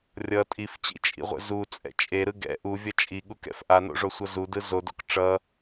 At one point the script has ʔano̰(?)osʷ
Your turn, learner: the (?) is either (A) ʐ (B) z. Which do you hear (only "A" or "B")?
A